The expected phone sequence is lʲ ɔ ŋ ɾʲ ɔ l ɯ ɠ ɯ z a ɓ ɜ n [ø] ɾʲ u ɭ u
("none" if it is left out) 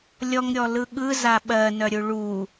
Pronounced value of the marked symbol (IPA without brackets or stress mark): œ